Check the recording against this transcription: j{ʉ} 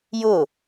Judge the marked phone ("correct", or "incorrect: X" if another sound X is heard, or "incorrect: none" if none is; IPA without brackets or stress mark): incorrect: ʊ